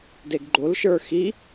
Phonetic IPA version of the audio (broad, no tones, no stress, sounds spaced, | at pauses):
d e ɡ ɡ͡ǃ o l ʃ ə˞ x i